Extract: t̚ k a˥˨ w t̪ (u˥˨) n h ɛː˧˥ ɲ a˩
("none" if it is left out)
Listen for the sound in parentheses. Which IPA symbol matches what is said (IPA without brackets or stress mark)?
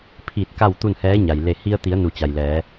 u˥˨